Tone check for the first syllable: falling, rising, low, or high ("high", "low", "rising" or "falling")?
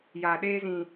low